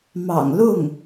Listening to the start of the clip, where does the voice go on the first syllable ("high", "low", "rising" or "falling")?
low